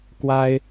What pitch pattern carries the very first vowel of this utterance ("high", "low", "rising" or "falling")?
high